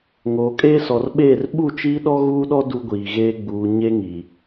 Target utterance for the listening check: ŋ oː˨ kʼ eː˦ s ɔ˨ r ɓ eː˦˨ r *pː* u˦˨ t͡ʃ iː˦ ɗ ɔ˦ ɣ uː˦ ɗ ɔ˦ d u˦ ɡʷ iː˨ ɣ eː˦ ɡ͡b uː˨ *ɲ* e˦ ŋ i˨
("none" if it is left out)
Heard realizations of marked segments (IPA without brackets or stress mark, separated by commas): ɓ, ɲ